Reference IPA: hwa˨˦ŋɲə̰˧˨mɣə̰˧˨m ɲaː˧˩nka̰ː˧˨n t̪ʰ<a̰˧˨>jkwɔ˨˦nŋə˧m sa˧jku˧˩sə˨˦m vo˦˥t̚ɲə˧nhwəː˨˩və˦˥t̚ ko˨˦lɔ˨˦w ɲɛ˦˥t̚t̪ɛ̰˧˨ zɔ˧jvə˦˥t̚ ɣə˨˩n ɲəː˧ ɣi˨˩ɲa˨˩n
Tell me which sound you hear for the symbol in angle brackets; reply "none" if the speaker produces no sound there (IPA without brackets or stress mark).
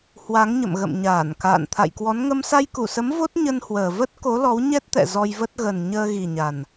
a̰˧˨